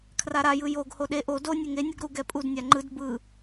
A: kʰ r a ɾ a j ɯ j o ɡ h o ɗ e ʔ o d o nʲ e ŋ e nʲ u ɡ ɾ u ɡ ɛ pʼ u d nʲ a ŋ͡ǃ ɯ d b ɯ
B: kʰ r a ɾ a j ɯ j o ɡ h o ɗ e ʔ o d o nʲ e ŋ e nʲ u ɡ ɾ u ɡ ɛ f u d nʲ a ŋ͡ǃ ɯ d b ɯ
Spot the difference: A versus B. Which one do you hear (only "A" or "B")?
A